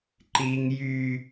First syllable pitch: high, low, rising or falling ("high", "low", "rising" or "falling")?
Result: high